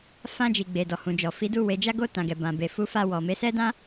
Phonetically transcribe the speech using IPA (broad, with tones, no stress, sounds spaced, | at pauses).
f ã˧ d͡ʒ i˨ ɡ͡b e˨ d ɔ˨ h ũ˨ d͡ʒ ɔ˨ f i˨˦ d u˧ w e˨ d͡ʒ a˧ ɡ o˧ t ã˨ ɡ ɛ˨ b ã˨ b e˨ f u˧ f a˧ w ɔ˨ m e˨˦ s ɛ˦ d ã˦